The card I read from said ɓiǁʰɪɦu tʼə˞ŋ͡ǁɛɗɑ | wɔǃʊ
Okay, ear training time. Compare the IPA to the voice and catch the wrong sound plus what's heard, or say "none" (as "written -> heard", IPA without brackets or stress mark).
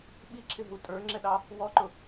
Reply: none